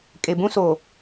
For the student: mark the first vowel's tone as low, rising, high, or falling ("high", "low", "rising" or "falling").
low